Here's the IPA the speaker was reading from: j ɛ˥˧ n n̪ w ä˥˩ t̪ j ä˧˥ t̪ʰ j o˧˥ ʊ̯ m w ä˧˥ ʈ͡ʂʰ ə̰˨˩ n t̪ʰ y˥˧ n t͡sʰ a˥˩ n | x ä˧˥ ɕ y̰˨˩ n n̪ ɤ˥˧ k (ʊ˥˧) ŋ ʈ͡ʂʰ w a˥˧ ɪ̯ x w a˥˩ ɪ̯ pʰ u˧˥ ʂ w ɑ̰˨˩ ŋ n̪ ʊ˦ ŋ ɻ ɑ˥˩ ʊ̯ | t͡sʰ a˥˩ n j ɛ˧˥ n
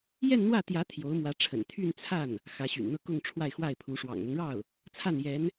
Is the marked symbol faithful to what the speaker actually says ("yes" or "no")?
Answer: yes